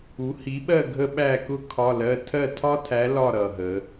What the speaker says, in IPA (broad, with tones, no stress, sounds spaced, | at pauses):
u˨˥ h i˨˥ ɓ ɜ˥˨ ɡʱ ə˥ ɓ æ˥˨ k ʊ˥ kʰ ɒ˧˥˧ l ɜ˧˥˧ tʰ ɜ˥˨ tʰ ɒ˥ tʰ æ˨˥ l ɒ˥˨ ɾ ʌ˨˩ ɦ ə˩˧